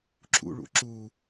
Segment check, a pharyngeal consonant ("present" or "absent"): absent